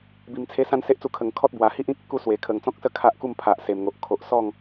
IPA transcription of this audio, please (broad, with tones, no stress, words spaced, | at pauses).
bi˧mt͡sʰe˦ sã˥˧nse˦ʔt͡su˧ kʰə˨˩ŋkʰɔ˦t̚ bwa˨˩hi˦ʔ ĩ˦k̚ ə˨˩ku˦swe˨˩ kʰə˨˩ŋt͡sɔ̃˦k̚sə˦ kʰa˦ʔku˥˧mpʰa˨ʔ se˨˩mŋo˨ʔ kʰo˨ʔsɔ˥˧ŋ